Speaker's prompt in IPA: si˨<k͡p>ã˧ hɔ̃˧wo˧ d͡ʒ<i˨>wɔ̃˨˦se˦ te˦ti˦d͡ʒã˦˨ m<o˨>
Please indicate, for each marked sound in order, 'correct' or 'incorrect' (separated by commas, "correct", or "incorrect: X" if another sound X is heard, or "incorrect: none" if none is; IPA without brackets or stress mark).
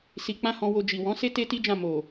correct, correct, correct